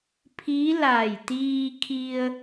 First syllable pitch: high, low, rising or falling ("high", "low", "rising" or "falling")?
rising